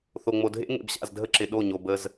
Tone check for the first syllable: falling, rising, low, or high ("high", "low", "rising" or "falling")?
low